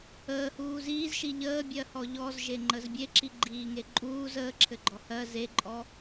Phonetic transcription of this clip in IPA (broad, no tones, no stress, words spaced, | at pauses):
əːhuː ziːzʃi ʎəːbʲɜhɔ ʎɔzʒeŋ͡ǃəz bʲeǁiɡ͡ǃiːŋe ǃʼuːz əːǁʰɘɡ͡ǃɔ hɜ zeǃʼɔ